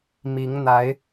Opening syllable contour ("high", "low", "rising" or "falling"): rising